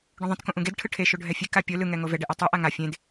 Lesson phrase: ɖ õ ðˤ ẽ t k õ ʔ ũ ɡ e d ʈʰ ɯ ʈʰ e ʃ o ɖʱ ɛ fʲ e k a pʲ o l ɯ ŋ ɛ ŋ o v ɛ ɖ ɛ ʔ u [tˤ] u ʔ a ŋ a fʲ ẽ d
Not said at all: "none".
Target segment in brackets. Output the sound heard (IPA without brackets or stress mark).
tˤ